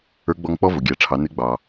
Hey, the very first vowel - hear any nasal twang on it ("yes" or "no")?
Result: no